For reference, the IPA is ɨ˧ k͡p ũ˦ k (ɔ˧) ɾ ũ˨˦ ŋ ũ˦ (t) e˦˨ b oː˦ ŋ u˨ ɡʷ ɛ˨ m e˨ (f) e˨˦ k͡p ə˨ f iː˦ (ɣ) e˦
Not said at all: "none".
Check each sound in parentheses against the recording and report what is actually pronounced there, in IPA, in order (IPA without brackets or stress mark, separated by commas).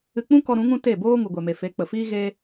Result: ɔ˧, t, f, ɣ